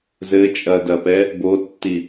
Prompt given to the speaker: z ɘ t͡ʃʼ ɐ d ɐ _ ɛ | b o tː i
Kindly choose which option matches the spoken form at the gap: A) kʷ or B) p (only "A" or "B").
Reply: B